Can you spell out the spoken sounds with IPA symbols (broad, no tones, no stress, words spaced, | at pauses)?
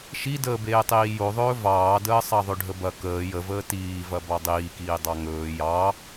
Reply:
ʃidəːbeːtˤiː joðˤɵː vɑːdəː sˤɑðˤɵɖʱəbɐ kəː jəvəː tiːvɐ bɑdˤiːkiː dˤɑŋɵː jɑ